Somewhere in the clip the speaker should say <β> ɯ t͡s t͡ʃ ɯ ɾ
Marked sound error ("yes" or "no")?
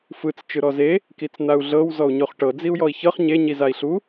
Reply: yes